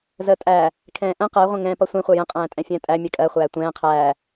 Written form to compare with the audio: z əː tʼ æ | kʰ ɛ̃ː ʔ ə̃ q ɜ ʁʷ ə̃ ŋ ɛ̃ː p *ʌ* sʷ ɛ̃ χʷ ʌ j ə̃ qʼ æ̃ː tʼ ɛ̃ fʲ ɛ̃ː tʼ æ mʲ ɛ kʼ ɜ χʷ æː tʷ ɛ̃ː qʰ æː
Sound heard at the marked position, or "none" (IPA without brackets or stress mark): ʌ